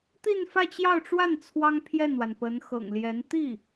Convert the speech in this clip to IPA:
t̪ i˥˧ n f ä˥˧ t͡ɕ j ɑ˥˧ ʊ̯ ʈ͡ʂ w a˥˩ n t͡sʰ w ɑ˥ ŋ pʰ j ɛ˥˩ n w a˩ n p ə˧˥ n x ɤ̰˨˩ ŋ l j ɛ˧˥ n t̪ i˥˩

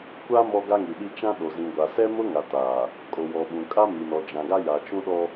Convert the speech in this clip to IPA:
kʷ a˦ m ɔ˦ ɡ a˦ ŋ i˨ ɗ i˦ t͡ʃ ã˦ ɗ o˨ z ĩ˨ ɡʷ a˨ s ɛ˦ m ʊ˦ ŋ a˨ t aː˨ | kʼ o˨ w ɔ˨ ɓ ũ˨ kʼ a˦ m i˨ n ɔ˨ d͡ʒ ã˨ ɡ a˦ j a˨ t͡ʃ ũ˦ ɗ ɔ˦

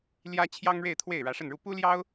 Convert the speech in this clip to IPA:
l j ä˥ t͡ɕʰ j ɑ˥ ŋ ɻ e˥˧ ɪ̯ t̪ʰ w e˥˩ ɪ̯ ɻ ä˧˥ ʂ ə˥˧ n ɻ u˥˩ p u˥ l j ɑ˥ ʊ̯

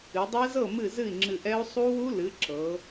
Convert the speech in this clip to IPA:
ɨ˩˧ dˤ ɛ˦˥ z ɤ˥˩ m ɨ˥˩ z ɨ˥˩ i̯ ŋ͡ǁ ɨ˧˩ ʔ ɛ˦˥ u̯ sˤ u˦˥ w u˦˥ l ɨ˩˥ ǁ ɤ˩˧

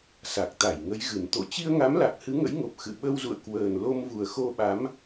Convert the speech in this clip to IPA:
s a˨˩ k̚ t̪ a˧˩ j ŋ ə˨˦ j ɣ ɨ˨˩ n t̪ o̰˧˨ t͡ɕ i˧ ə̯ ŋ a˨˦ m l a˨˩ k̚ h ɨ˨˦ ŋ ə̰˧˥ j ŋ o˨˩ p̚ x ɨ̰˧˨ ɓ ə˧ w z ṵ˧˨ ə̯ k w əː˨˩ n l o˧ m v u˨˩ ə̯ x o˧ ɓ a˨˦ m

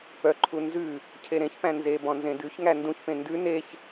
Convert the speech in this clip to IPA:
p œ ǃʰ u n z ʉ | cʰ e ɾ ẽ ç p æ̃ n z e b ɔ̃ n z ẽ d ʉ ç ŋ æ n d ũ ç p ẽ n d ʉ n e ç

